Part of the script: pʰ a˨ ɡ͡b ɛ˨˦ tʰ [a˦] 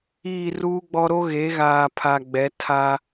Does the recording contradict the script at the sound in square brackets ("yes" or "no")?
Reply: no